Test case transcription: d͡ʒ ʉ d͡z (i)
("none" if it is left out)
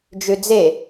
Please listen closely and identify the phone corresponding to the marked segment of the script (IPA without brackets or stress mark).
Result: e